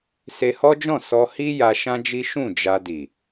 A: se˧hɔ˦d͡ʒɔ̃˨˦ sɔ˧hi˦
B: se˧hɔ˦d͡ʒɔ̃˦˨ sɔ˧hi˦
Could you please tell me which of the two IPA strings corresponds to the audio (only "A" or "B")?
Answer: B